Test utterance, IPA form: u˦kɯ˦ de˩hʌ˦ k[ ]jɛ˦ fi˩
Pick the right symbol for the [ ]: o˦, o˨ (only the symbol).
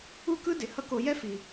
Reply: o˨